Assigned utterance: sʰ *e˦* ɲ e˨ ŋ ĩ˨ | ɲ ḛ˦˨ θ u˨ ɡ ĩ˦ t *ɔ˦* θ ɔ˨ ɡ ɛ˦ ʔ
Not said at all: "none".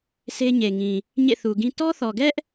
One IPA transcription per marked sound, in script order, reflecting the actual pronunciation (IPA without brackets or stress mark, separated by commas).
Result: e˦, ɔ˦